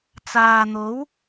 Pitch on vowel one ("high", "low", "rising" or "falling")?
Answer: low